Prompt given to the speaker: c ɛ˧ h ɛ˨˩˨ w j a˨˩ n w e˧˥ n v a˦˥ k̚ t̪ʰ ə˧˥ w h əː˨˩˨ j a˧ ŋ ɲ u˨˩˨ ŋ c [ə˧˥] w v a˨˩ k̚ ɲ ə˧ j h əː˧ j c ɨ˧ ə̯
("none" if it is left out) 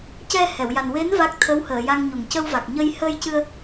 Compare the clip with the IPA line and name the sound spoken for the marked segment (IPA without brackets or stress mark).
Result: ə˧